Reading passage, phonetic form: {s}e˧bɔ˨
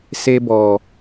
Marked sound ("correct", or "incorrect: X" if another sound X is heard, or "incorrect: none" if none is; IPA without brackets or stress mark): correct